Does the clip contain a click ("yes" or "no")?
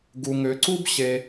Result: yes